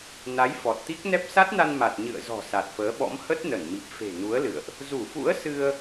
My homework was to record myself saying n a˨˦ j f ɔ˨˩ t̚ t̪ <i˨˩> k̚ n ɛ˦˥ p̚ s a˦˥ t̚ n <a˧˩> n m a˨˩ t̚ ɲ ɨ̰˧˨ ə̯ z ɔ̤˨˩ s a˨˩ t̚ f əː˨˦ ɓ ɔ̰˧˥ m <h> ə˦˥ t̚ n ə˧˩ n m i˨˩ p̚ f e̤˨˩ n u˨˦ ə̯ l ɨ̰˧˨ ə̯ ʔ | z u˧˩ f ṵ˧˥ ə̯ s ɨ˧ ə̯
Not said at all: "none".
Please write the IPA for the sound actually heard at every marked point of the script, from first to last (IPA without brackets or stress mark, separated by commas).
i˦˥, a˧, h